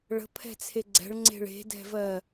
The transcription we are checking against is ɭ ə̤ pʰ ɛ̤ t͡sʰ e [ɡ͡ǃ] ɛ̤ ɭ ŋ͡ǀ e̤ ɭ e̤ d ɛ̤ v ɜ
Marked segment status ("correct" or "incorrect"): incorrect